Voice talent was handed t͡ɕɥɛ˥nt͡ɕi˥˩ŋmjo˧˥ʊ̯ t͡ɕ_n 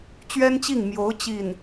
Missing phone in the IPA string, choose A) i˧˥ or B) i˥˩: B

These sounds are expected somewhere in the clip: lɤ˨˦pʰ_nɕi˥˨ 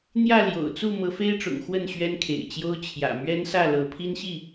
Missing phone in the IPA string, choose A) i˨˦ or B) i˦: B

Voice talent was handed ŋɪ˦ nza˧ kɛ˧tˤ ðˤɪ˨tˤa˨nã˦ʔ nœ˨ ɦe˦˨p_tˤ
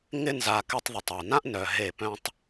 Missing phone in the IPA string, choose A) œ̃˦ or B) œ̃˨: A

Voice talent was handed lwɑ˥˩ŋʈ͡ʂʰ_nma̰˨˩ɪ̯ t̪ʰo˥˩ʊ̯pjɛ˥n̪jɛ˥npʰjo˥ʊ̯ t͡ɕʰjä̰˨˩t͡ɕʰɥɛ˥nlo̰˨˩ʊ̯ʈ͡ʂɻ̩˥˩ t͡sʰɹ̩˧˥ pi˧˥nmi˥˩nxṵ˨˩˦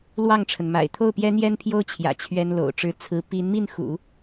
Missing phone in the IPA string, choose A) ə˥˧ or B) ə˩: B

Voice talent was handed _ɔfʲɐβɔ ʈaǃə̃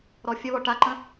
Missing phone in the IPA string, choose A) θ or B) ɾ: B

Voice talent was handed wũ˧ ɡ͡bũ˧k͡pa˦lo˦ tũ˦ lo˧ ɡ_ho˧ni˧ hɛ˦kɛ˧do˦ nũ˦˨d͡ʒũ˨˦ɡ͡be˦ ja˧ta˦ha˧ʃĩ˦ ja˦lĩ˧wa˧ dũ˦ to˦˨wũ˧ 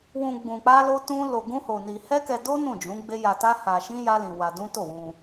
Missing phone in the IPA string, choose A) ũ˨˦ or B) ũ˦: B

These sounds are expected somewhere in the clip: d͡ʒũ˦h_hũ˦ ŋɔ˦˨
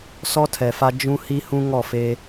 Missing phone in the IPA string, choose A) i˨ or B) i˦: B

